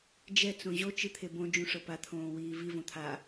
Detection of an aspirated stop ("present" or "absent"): present